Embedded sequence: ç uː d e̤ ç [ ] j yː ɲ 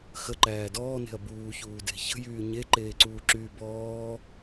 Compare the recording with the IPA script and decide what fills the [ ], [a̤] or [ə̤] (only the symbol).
ə̤